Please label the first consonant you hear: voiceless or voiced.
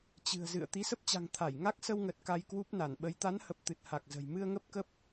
voiceless